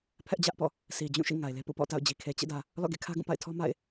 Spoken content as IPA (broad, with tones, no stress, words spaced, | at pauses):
pʰɛ˦ʔd͡ʑä˦ʔpɔ̰˦˨ | si˨d͡ʑũ˦˨ʃḭ˦˨ ŋa˨ɪ̯le˦pṵ˦˨ pɔ̰˦˨ta̰˦˨ʊ̯d͡ʑi˨ kʰe˨t͡ɕḛ˦˨dä˨ | lɔ̰˦˨ɡḛ˦˨ kʰä˦ɡũ˦˨pa̰˦˨ɪ̯ tʰɔ˦ ma̰˦˨ɪ̯